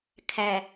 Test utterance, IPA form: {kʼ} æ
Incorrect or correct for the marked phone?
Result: incorrect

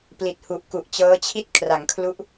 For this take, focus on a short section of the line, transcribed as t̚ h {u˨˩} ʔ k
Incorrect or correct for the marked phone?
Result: correct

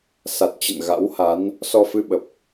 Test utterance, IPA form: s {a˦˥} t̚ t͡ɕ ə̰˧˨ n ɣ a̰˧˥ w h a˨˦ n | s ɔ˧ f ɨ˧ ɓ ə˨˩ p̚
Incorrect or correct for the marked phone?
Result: incorrect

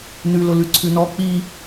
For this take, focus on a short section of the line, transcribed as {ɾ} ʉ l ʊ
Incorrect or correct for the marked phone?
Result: incorrect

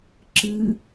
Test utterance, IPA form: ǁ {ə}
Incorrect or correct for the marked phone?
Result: incorrect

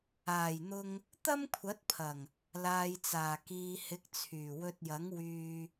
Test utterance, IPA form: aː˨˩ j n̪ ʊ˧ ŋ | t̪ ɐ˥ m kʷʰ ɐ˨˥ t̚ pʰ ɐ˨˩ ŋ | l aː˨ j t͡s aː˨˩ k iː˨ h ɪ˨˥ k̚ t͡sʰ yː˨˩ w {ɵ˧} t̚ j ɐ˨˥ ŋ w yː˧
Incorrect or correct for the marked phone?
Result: correct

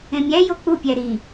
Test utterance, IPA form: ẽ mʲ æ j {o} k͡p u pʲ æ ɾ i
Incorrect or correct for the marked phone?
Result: correct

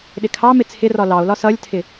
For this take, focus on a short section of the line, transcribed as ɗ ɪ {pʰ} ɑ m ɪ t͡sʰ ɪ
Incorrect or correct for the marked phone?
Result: incorrect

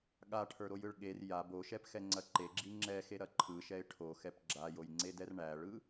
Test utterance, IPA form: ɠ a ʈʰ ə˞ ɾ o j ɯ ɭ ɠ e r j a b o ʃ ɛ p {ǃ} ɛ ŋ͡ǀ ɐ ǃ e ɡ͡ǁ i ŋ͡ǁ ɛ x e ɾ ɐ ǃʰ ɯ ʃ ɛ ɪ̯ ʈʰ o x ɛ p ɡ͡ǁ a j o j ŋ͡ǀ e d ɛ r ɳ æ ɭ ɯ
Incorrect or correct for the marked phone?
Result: incorrect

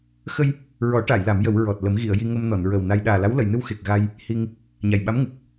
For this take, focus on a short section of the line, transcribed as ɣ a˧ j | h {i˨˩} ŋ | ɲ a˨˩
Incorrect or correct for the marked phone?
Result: incorrect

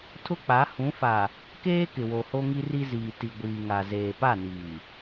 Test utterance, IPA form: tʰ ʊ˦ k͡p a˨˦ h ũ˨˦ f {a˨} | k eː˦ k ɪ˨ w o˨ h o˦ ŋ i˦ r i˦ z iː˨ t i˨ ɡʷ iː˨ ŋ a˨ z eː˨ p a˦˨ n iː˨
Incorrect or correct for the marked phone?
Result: correct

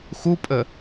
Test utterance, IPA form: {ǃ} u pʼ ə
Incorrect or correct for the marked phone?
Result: incorrect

